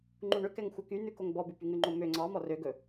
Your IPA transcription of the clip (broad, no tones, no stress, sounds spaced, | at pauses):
ŋ͡ǃ u ɳ ø k ɛ ŋ xʷ œ k y n ʉ k o ŋ b ɔ b ʉ p y ŋ ʉ ŋ͡ǃ o m ø ŋ͡ǀ ɑ m ɔ r ø ɡ ɵ